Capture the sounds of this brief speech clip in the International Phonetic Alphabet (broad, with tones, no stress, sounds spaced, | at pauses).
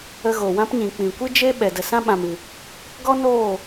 ə˧ ɣ o˨ w ã˦ p ɲ ĩ˨ k͡p ĩ˨ kʷ ɨ˦ d͡ʒ e˦ ɓ ɛ˨ d ə˨ s ã˦ ɓ ã˨ m ɨ˨ | ɡ ɔ˦ n oː˦˨